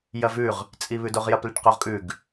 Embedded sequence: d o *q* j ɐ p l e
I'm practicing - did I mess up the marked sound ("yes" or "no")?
yes